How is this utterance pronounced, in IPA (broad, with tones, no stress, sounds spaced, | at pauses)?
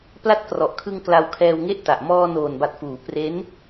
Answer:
p l a˦˥ t̚ k r ɔ˨˩ ʔ kʰ ɯ˧ ŋ k l a˧ w kʰ ɛː˧ w ŋ e˥˩ ʔ t a˨˩ ʔ m ɔː˧ n oː˨˩ n b a˨˩ t̚ f uː˩˦ p r e˦˥ n